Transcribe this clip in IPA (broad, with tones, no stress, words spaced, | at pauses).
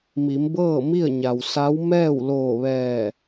mi˩˧mbɤː˥˨mi˥˨ə̯ ɲa˩wsa˧˥w mɛː˥˨wloː˧˩ʋɛː˧˩